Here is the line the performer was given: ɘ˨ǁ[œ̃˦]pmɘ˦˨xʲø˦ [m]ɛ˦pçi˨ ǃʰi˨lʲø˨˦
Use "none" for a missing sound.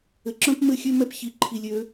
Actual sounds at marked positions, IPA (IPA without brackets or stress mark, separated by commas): œ̃˦, m